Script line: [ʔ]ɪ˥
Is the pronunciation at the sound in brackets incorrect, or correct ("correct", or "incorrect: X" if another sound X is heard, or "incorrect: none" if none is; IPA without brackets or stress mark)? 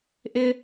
correct